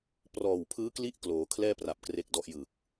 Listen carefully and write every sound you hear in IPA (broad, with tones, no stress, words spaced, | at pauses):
prɔː˨˩wpʰɯː˦˥kli˦˥ʔ kloː˩˦kʰlɛː˥˩pra˨˩p̚ kre˥˩k̚dɔ˥˩ʔ jɯ˨˩k̚